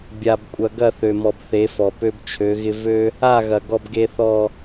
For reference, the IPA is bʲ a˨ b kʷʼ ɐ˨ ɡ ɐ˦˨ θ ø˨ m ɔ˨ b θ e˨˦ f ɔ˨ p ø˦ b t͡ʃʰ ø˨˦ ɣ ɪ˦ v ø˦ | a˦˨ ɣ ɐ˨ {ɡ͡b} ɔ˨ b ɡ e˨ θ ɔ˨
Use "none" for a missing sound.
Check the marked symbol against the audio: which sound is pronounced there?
ɡ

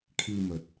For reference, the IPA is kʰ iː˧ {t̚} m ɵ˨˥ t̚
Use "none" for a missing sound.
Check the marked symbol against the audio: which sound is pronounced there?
none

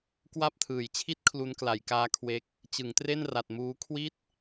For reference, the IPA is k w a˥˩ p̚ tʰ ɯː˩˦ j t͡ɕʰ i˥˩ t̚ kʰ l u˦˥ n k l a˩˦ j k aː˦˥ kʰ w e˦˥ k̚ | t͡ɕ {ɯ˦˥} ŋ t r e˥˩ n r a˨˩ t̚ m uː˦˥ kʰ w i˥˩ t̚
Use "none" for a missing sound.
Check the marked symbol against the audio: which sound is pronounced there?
ɯ˩˦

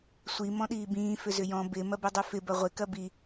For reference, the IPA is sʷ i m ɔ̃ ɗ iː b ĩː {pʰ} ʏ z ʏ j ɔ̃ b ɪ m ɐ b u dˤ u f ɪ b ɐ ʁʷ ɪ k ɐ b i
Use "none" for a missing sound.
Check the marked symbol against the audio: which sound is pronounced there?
f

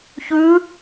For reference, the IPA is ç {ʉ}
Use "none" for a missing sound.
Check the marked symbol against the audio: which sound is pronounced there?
ʉ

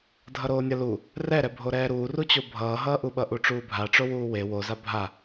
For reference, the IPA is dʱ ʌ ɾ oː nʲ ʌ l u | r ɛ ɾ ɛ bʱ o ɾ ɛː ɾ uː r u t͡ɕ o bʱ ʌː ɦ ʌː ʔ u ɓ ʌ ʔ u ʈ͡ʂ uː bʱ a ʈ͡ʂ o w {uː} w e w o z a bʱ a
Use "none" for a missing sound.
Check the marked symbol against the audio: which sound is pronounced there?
uː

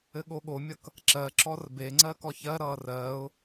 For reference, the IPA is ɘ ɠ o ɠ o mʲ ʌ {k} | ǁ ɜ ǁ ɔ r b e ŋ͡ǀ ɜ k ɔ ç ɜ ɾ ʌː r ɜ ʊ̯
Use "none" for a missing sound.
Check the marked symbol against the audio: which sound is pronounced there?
k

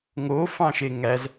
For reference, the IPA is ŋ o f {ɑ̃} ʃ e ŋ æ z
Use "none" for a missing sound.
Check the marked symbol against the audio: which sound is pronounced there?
ɑ̃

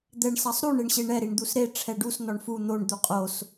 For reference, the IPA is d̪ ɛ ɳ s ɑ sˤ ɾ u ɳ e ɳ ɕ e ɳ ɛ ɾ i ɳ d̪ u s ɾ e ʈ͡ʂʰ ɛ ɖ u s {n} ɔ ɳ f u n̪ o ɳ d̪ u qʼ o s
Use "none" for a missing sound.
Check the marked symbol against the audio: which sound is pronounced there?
n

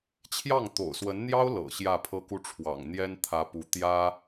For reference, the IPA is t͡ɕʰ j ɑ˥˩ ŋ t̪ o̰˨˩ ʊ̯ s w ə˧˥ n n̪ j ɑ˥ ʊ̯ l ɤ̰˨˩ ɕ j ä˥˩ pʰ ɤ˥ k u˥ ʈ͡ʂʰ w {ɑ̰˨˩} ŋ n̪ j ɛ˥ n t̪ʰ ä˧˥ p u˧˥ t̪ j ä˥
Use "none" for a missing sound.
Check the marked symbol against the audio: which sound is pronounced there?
ɑ̰˨˩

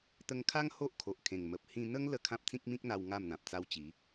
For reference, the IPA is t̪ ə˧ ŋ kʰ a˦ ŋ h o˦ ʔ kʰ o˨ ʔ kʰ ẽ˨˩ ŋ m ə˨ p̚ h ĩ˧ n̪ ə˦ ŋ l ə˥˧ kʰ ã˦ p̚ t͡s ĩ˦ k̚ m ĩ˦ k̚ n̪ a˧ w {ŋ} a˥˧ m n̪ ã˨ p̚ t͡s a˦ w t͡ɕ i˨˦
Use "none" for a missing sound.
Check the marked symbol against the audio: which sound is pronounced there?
ŋ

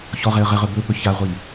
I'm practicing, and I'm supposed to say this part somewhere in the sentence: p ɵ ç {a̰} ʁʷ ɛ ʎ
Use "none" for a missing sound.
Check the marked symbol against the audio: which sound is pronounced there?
a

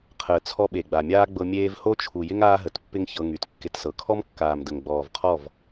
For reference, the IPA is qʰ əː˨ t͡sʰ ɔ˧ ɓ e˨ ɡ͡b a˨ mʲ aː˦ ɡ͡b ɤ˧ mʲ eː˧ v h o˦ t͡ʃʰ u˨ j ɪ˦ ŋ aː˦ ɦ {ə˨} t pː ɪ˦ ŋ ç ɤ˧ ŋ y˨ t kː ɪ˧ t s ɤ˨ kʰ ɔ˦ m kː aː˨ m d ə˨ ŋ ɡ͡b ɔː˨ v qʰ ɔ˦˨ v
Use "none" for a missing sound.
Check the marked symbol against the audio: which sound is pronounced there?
ə˨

